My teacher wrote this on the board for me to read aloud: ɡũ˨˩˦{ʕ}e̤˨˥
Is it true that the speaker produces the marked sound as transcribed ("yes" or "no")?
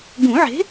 yes